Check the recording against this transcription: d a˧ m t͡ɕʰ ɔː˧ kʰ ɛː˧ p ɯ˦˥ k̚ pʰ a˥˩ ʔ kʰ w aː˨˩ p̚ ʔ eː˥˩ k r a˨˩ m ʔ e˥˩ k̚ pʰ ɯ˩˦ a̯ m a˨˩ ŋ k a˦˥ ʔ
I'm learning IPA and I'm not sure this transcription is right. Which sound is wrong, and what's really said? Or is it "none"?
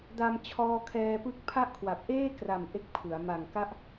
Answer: aː˨˩ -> a˨˩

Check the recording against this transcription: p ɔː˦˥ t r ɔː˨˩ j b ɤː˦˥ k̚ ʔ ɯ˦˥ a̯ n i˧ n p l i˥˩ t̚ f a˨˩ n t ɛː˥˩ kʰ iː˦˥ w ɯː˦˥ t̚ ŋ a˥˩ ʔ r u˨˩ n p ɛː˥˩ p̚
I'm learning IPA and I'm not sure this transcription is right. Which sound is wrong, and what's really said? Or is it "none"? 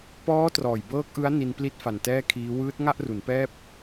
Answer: u˨˩ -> u˩˦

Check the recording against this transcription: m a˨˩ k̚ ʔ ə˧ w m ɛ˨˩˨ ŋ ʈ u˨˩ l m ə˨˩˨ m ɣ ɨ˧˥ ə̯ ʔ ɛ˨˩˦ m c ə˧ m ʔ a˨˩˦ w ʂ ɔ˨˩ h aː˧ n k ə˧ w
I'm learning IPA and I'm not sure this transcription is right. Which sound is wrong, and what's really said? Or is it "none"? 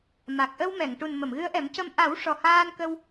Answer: l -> n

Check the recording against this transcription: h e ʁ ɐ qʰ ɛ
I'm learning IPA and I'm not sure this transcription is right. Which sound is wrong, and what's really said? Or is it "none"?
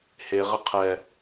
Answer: ɐ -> ə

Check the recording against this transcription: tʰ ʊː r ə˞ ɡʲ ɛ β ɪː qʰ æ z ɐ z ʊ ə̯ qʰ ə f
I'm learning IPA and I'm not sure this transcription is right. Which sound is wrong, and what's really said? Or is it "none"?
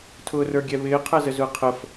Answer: ɐ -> ə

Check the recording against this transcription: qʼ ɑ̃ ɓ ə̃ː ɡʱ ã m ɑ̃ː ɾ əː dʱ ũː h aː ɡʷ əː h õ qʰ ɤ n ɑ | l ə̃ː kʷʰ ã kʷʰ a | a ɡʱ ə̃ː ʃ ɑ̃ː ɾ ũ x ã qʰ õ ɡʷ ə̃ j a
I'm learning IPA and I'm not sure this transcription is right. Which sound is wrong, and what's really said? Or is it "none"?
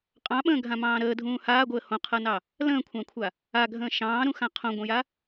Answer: none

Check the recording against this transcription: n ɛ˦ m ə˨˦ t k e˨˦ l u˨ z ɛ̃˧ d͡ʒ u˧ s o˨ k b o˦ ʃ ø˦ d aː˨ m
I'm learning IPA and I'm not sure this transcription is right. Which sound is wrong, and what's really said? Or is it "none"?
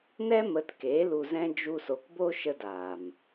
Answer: ø˦ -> ə˦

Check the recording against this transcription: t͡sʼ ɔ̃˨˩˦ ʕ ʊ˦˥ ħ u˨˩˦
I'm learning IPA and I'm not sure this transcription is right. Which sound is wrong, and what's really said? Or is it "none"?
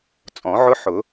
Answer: u˨˩˦ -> ʊ˨˩˦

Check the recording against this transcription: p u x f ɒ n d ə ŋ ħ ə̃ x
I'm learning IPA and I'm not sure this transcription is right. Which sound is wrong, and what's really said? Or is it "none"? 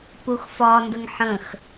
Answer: none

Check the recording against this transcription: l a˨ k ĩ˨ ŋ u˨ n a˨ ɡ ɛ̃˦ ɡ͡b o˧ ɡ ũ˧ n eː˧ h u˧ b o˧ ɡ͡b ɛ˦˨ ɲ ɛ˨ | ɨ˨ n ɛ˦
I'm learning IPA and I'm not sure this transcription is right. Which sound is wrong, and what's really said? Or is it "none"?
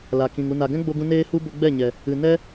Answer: none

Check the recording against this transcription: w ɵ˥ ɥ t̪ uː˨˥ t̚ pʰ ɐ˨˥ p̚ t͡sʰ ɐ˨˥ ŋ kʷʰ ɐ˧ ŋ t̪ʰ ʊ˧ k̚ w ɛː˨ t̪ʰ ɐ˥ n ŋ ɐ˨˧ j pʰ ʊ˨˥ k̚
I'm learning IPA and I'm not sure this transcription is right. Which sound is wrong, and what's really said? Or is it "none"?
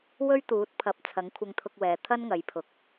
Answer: none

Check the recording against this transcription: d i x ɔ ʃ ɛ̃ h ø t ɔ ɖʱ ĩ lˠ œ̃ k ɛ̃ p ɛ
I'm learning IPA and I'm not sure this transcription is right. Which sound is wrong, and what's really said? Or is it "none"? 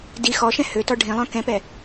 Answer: none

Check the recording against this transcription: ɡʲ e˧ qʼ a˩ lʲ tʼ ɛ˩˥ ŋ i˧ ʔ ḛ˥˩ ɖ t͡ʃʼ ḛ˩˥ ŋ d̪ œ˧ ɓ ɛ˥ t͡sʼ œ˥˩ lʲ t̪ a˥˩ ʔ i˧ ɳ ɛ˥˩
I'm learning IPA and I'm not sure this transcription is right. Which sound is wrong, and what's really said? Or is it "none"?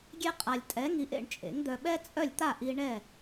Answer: ɖ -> ɳ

